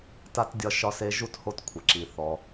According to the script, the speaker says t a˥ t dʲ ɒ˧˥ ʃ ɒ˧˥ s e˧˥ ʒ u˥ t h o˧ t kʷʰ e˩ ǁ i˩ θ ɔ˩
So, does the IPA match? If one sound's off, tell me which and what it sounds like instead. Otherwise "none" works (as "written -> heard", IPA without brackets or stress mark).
none